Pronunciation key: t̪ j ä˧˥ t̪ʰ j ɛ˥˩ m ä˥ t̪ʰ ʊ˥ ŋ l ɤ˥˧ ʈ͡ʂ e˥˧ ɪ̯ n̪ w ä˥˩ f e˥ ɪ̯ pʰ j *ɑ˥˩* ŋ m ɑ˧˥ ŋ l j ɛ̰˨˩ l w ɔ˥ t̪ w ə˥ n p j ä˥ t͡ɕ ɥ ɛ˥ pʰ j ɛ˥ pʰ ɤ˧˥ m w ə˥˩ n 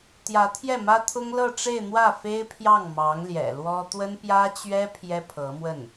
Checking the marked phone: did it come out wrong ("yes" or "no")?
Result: no